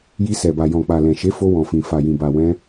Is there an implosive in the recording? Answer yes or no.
no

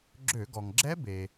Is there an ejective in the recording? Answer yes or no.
no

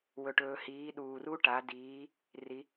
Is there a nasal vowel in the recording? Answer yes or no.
no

